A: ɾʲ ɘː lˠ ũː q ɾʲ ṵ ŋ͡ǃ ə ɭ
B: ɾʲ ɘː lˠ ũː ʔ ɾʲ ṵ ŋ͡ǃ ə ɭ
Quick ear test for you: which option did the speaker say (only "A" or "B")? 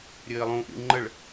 B